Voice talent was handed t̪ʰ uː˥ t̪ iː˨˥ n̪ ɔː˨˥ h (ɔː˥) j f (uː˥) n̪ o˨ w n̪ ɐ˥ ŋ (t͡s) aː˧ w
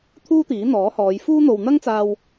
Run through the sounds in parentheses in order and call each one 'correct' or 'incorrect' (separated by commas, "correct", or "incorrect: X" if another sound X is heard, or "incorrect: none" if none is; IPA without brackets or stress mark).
incorrect: ɔː˨˧, correct, correct